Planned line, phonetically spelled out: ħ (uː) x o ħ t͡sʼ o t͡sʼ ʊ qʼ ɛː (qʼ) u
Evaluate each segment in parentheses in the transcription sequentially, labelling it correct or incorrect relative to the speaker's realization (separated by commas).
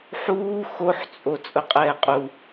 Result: correct, correct